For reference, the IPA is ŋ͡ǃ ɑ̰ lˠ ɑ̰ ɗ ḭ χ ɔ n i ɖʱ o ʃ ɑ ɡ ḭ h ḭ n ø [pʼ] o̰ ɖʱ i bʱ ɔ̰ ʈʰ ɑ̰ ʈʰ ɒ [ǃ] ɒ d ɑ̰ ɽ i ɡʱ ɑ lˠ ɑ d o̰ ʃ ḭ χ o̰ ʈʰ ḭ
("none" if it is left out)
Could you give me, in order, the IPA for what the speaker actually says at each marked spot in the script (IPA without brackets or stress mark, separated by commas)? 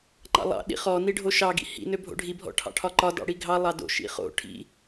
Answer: bʱ, ǃ